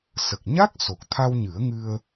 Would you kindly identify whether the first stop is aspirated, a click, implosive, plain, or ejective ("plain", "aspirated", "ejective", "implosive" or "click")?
plain